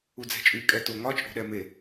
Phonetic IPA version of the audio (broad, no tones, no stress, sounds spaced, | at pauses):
u d͡z ɛ̤ t͡ʃʼ y kʼ ɛ t o ŋ ɒ t͡ʃʼ o̤ ɗ ɛ m e